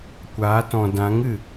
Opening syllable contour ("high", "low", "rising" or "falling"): rising